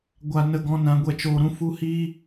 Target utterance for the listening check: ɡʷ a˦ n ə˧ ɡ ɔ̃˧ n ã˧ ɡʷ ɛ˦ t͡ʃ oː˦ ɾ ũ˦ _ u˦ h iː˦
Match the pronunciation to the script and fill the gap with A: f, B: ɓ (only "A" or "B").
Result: A